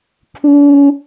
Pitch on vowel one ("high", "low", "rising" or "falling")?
high